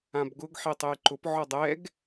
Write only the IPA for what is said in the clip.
ãbɡʊɡ ħitˤejǃʊp ʕɔdˤɛɡ

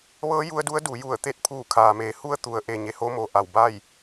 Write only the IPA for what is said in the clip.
ʋɤː˧˥ ju˧˥ə̯du˧˥ə̯du˩˧ ju˧˩ə̯t̪e˥˨t̚ pʰuː˧˩kʰaː˩meː˩˧ hu˧ə̯ t̪u˩˧ə̯ʔe˩ ɲe˧ho˧˥mo˩ ʔa˧˩wba˥˨j

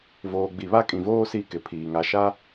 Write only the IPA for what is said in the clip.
voː˨ɡ͡bi˨βa˦kʼĩ˨ voː˦ si˦kɪ˨pʰiː˨ ŋa˨ʃa˦

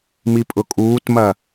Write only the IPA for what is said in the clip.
mipʼʊkʼuːtmɐ

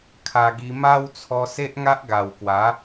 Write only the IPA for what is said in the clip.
kʰa˧ɡi˧ ma˦wt͡sʰɔ˧ se˦ʔŋa˦ʔɡa˨˩wkwa˨˦

